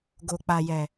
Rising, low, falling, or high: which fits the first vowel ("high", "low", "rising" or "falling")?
low